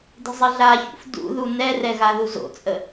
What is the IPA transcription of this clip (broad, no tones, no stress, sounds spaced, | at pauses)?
d ə̤ zˤ ə ɮ a ç ṵ f d ṵ ð u n ɛ r ɛ ɣ a ð u z o̰ t͡sʼ ə